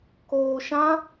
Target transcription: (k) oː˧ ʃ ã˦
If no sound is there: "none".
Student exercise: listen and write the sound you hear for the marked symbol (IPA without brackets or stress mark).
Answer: k